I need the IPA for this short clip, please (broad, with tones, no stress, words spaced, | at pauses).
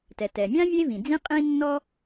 tɛ˩tɛ˩mʲã˥ vʲe˥vĩ˩d͡zĩ˥qʼĩ˥ nːɔ˥